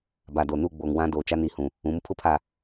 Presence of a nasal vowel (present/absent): present